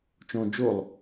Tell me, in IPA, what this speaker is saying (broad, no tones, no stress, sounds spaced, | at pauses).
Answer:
t͡ʃ õ d͡ʒ o lˠ